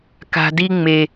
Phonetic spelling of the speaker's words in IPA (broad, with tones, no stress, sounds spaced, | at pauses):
k a̤˨ d i˧ ŋ͡m e˨